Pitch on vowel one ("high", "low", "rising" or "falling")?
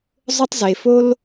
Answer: high